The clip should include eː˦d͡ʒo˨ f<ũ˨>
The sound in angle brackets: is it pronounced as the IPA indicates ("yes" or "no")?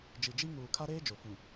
yes